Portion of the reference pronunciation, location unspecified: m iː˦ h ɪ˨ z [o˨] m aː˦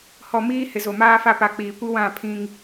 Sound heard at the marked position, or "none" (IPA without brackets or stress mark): o˨